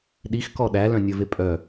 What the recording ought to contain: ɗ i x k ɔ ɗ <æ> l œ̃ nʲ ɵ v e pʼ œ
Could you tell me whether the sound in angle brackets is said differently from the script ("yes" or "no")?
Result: no